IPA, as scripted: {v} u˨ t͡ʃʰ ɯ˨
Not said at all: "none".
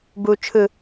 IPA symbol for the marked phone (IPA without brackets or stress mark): b